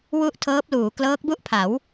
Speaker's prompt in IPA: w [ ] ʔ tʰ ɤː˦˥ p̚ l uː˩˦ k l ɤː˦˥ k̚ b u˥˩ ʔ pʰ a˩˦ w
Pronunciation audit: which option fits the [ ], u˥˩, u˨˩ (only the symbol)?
u˥˩